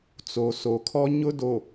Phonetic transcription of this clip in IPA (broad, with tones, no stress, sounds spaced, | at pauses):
t͡s o˨ s o˨ kʰ ɔ˦ ɲ ʊ˦ d o˨